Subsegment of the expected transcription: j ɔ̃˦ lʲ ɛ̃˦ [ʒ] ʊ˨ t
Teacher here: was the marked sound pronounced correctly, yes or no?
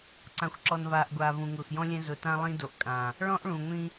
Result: no